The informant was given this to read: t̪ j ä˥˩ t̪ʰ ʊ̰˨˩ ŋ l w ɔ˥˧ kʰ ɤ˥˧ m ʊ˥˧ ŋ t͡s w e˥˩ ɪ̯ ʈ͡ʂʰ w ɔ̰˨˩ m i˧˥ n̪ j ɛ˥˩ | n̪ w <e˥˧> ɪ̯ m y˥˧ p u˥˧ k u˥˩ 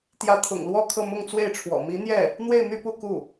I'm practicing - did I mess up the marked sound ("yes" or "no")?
no